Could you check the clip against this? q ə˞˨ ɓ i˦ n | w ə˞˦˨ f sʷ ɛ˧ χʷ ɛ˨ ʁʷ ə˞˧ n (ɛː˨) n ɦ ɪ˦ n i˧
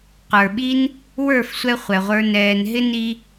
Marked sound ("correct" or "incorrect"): correct